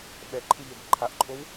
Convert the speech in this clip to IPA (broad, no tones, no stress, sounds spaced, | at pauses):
ɓ ɛ ǃʰ ɯ ʎ ɛ ɡ ǃʰ a ʔ ǃʼ o w